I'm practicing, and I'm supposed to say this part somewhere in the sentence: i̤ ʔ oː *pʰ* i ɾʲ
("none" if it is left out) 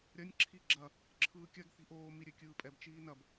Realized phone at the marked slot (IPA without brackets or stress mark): m